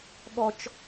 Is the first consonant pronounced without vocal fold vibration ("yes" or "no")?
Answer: no